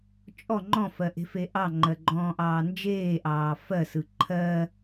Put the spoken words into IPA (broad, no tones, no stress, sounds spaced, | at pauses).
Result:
t͡ʃʼ ɔ ŋ͡ǃ ɔ̃ f ɜ ʔ e̤ f e ʔ ɑ ŋ͡ǃ ɜ ɡ͡ǃ ɔ̃ː ʔ ɑː n d͡ʒ eː ʔ ɑː f ɜ s ɯ ǃʰ ɜ